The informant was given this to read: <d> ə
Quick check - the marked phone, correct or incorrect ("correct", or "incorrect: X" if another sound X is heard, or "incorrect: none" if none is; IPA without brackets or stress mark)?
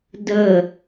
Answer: correct